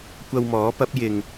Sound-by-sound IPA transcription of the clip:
kʷ ɐ˧ w m ɔː˨˥ p ɐ˨˥ p̚ j ɪ˨ ŋ

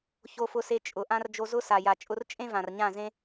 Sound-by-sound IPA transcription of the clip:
ç o˧ f ʊ˧ s e˧ t͡ʃʼ ʊ˨ ʔ ã˦ r d͡ʒ o˧ z ʊ˦ s a˨ j a˨ t͡ʃʼ ʊ˧ r t͡ʃʼ ẽ˦ v ã˨ r ɲ ã˦˨ z ẽ˦

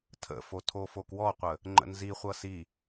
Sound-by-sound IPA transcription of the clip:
tʰ ə̰ f o tʰ o f o k w ɔ qʷ ə | ŋ͡ǃ ə̰ n z i χʷ ʌ s i

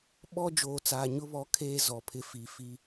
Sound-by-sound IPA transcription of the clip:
ɓ ɔ˦ d͡ʒ oː˨ t͡s aː˨ ɲ ʊ˦ β ɔ˨˦ kʰ eː˦ z ɔ˨ pʰ ɪ˦ f i˨ f i˦

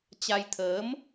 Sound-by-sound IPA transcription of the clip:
t͡ɕ a˧ j t̪ʰ əː˨˦ m

